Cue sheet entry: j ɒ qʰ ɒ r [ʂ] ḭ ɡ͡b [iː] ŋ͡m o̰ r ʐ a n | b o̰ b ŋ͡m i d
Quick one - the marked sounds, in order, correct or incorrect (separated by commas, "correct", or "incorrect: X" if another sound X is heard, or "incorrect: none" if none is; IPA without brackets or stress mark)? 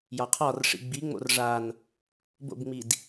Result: correct, incorrect: i